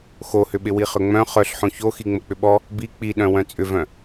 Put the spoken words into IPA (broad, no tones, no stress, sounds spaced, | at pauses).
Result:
x o h ʏ ɓ ɪ w i χ ʏ ŋ͡m œ̃ χ œ ɬ ħ õ ç o x i ŋ͡m ə k͡p ʏ ɓ ɔ | b i k͡p i ɗ œ̃ w œ̃ t͡sʼ ʏ v œ̃